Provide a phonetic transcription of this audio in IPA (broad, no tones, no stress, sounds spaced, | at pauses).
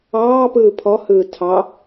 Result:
ɑː p ɯː pʰ ɔ h ɯː tʰ ɑ